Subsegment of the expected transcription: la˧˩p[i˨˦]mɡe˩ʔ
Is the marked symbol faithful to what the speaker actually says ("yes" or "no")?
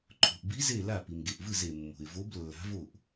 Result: no